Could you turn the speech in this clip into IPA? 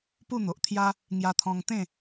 p u˥˧ n̪ o˨ ʔ t̪ʰ j a˦ | ŋ j a˧ t̪ʰ ɔ̃˧ ŋ t̪ ẽ˥˧

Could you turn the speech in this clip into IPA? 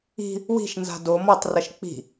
i̤ | w i̤ ʃ n z a̤ d o m ɔ tˤ r ɐ ʃ k͡p i̤

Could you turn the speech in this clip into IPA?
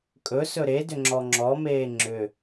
kʼ ɵ s ɵ ɾ e d ʏ ŋ͡ǁ ɔ ŋ͡ǁ ɔ m eː ŋ͡ǁ ʏ

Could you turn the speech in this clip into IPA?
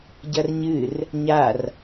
ɟ ɐ r ɲ ɨ r | ɲ a r

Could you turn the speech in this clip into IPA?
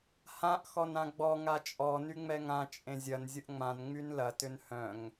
h ã ʔ x ɔ n ã ɡ͡b ɔ ŋ a t͡ʃʼ ɔ n y ŋ͡m ɛ ŋ ã t͡ʃʼ ẽ zʲ ɐ n zʲ ʊ ʔ ŋ͡m ã n ŋ͡m y n l ɐ t ʏ n h œ̃ ŋ

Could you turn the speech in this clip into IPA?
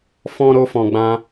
f ɔ̃˦ ɾ o˦ f ɔ̃˧ ɡ͡b ã˦

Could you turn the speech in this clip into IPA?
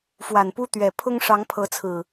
f w a˨˩ n p u˦ t̪ ɥ ɛ˨˩ pʰ ʊ˦ ŋ ʂ ɑ˨˦ ŋ pʰ ɤ˨˦ t͡sʰ ɹ̩˨˩

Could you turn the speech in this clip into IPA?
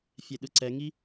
fʲ ɛ ɗ ɯ ǀ ɛ ŋ i

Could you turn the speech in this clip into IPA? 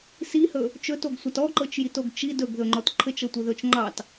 s i h ɵ | t͡ʃ ɵ t o ɡ sʷ a t ɔ ǃ ɤ t͡ʃ j i t o ɡ t͡ʃ i d ɵ ɡ ð ɵ ŋ͡ǃ ɔ t ǃʰ ɘ t͡ʃ ɤ tʷ ɘ ð ɵ t͡ʃ ŋ͡ǃ ɑ t

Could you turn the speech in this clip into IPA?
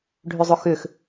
ɖʱ ʏ zˤ ʊ x ʏ x

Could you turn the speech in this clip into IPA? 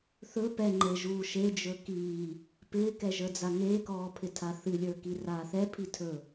θ ɵ p ɛ ŋ͡ǃ e ʒ uː ʃ e d͡ʒ ɵ k iː | p ɪː k ɛ ʒ ə˞ d͡z a ŋ eː k ɔː pʰ ɪ tʰ a θ ɨ lʲ ə˞ k i r aː θ ɛ pʰ i tʰ ɵ

